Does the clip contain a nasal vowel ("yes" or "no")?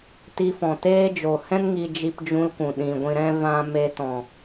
yes